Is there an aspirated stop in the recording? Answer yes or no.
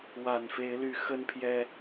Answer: yes